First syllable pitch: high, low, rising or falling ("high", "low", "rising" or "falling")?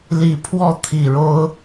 low